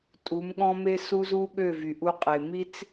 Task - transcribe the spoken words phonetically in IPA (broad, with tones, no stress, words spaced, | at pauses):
tʼu˨˦mɠɔ̃˦me˦ su˦z u˦ɠø˦˨vy˨ʔu˧ qʼe˨ mi˦t͡s